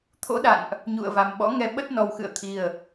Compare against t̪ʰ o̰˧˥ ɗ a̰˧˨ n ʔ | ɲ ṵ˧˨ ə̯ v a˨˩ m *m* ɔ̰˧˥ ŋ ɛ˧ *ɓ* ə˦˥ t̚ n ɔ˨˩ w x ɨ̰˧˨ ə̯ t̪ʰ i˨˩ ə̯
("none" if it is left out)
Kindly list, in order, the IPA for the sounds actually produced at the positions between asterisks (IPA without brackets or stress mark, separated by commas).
ɓ, ɓ